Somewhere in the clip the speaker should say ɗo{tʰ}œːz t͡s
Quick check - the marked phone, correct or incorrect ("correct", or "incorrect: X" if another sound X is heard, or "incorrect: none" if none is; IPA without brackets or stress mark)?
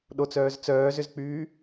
incorrect: t͡s